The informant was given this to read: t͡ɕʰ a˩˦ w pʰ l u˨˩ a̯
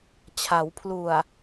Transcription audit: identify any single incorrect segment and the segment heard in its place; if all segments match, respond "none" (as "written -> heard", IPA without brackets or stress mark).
none